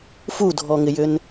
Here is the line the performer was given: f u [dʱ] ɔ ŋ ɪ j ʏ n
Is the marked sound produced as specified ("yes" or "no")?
yes